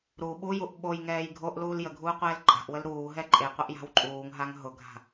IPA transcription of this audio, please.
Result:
ɾ u ɓ u j u ʔ ɓ o j ŋ ɛː j ɡʱ o ʔ l uː l j ə ɡʱ uː qʷ ɛː l ǃʼ a̤ ʔ w ə l ɾ uː ɦ ɛ ǃʼ e qʷ ə ʔ j a̤ w ǃʼ uː ŋ ɦ a ŋ ɦ ʊ ɡʱ a̤

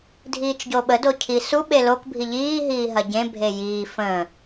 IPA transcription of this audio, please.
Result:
dʱ iː t͡ʃ ɟ o ɓ ə d o cʰ i s u ɓ e l o k bʱ i ʎ iː ɦ iː ɦ ɐ ɟ ẽ bʱ e j iː f ə̃ː

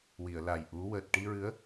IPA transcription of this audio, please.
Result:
w i˨˩˨ ə̯ l a˨˩ j ʔ u˧˥ w əː˨˩ t̚ ʈ i˧ ɹ ɨ˧˥ ə̯

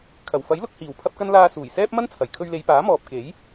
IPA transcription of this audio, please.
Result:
kʰ ɐ˨˩ w f ɐ˨˥ j l ʊ˧ k̚ h iː˨˩ w pʰ ɐ˥ p̚ k ɐ˥ n l aː˧ s uː˨˩ j s ɛː˥ p̚ m ɐ˥ n t͡sʰ ɐ˨˩ j kʰ ɵ˧ ɥ l e˨˧ j p aː˨˥ m ɔː˨ p̚ k e˨˥ j

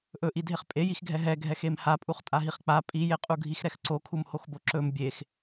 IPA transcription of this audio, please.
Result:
ʔ ɵ ʔ i dʱ e χ pʼ e j i x ɡʱ ɛ ɦ ɛ ɡʱ ɛ x e m h a pʼ u χ tʼ a ɦ i χ k͡p a pʼ i j e qʼ u ɡʱ i x ɾ ɛ x ǀ o kʰ u m h o x b o ǁ ɵ m bʲ e x

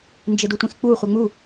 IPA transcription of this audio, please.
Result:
n d͡ʒ ɪ d u tʷ ĩ x k͡p u χʷ e ŋ͡m u

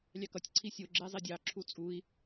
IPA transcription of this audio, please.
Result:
lʲ ɑ k ʌ tʲ ǀʰ i sʲ o ɡ͡ǁ e zˤ i dʲ ɑ ǁʰ u t͡sʼ u i̯

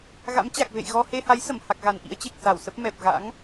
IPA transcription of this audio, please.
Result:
ɣ a̰˧˥ m t͡ɕ a˨˩ k̚ v ḛ˧˨ j ɣ ɔ˧ h e˧ h a˨˦ j s ə˧˩ m h a˨˩ k̚ ɣ a˨˩ n ʔ ḭ˧˥ ə̯ t͡ɕ e˨˩ k̚ s a˧˩ w s ə˦˥ p̚ m ɛ˨˩ p̚ ɣ a̰˧˥ ŋ

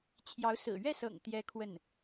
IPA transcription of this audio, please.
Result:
t͡ɕʰ j ɑ˧˥ ʊ̯ s ɹ̩˨˩ ɥ ɛ˥˩ s ɤ̰˨˩ ŋ t̪ j ɛ˥ kʰ w ə˥˩ n

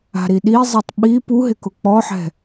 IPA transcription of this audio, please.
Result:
a̤ ɾ i ɗ i zˤ e tˤ ɓ i p u ɦ ɪ k ʊ k͡p ɔ ħ ɛ̤

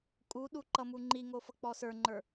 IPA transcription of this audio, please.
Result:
kʼ u ɗ u ǃ ʌ m u ŋ͡ǃ i ŋ o f ʌ k͡p ɔ s ə˞ ŋ͡ǃ ə˞

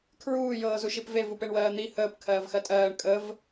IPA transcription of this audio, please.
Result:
kʰ ɹ uː j ɤː z u ʃ i p v e v u p e ɳ w ɜː n̪ i h əː p kʰ ɜː v x ɜ tʼ ɜː ɳ kʼ ə v

